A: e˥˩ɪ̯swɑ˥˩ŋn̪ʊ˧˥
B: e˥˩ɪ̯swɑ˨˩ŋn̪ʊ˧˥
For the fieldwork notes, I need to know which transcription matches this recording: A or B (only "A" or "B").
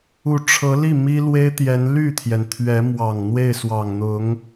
B